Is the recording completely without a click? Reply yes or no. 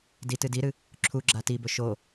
no